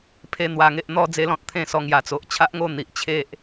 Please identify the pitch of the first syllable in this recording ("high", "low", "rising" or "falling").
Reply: high